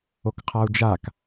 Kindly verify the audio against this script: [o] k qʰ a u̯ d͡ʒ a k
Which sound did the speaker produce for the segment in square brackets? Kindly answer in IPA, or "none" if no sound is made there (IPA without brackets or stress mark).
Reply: o